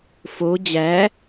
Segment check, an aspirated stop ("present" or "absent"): absent